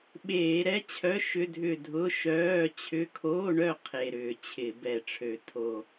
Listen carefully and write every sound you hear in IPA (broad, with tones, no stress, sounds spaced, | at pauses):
ɓ eː˧˩˧ ɾ ɛ˧˥˧ t͡ɕʰ œ˧˥˧ ʃ ʏ˧˥˧ dʱ ʏ˦˨ dʱ ʊ˧˥˧ ʃ œː˧˥˧ t͡ɕʰ ʏ˧˥˧ kʰ oː˧˥˧ ɳ œ˦˨ qʰ e˨˩ ɾ ʏː˧˩˧ t͡ɕʰ ɪ˧˩˧ b ɛ˨˩ ʈ͡ʂʰ ø˨˩ tʰ o˨˩